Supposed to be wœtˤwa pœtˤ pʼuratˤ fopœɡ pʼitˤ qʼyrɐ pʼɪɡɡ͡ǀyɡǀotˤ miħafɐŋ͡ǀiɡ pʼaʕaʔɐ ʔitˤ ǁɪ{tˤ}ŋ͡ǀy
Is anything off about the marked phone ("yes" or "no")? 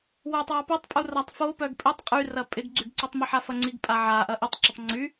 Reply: no